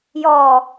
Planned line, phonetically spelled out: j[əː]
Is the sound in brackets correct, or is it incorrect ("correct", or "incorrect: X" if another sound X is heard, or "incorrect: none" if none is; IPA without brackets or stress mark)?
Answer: incorrect: ɔː